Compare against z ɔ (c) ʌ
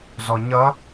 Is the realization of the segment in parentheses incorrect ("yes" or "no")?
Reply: yes